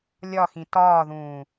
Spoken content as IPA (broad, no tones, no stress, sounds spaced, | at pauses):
lʲ ɒ x ĩ t ɒː ð ũː